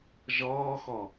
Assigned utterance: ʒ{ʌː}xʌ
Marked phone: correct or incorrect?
correct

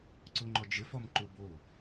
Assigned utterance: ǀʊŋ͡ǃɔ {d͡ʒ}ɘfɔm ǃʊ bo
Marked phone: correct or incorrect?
correct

